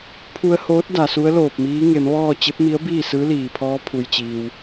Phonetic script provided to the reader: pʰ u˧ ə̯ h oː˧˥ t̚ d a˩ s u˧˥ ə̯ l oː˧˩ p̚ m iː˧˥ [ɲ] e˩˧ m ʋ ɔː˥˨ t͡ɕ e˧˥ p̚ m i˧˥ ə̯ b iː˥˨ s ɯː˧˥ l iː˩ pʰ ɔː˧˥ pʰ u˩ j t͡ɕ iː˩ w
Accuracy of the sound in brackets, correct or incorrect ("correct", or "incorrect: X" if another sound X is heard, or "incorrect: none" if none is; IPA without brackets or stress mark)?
incorrect: ŋ